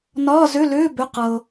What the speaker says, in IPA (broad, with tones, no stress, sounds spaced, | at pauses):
n ɒː˧˥˧ z ʏ˧˥˧ l ʏː˧˥˧ b ʏ˧˥˧ q ɤ˩